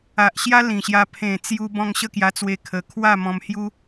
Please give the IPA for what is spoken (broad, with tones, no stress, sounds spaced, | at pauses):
a˨ ʔ ɕ j a˦ l ĩ˨˩ ɕ j a˧ pʰ ẽ˨˩ t͡s j u˧ b ɔ̃˧ ŋ ɕ ə˥˧ k j a˧ t͡s w e˧ kʰ ə˨˩ kʰ w a˥˧ m ɔ̃˧ m h j u˦